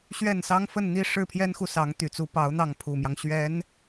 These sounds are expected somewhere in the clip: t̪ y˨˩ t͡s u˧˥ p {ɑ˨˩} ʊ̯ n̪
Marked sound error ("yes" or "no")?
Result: yes